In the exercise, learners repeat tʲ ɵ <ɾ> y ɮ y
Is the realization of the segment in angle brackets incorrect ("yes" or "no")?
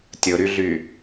no